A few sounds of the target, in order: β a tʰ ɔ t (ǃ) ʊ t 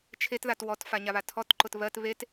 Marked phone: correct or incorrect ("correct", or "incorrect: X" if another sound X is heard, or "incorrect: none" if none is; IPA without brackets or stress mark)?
correct